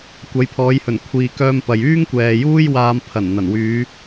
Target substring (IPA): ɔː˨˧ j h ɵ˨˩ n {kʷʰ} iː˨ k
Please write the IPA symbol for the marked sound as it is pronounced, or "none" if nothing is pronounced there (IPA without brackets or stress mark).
kʷʰ